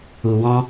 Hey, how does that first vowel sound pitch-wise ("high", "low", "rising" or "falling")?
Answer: low